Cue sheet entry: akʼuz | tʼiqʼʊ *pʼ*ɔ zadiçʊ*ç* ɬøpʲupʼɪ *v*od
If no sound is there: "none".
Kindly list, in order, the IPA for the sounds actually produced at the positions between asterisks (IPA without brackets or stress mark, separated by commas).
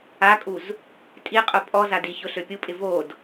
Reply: pʼ, none, v